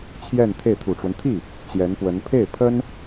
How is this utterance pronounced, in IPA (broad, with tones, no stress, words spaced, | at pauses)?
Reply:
t͡ɕʰjɛ˥˧nt̪ʰe˥˩ɪ̯ t̪ʰu˨˩ʈ͡ʂwə˦n t̪ʰi˥˩ | t͡ɕjɛ˧˥npwə˧˥n pʰe˥˩ɪ̯pʰə˥n